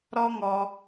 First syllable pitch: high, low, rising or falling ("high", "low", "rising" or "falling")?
high